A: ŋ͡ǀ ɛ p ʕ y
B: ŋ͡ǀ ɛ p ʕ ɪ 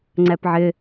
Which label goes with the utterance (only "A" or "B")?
B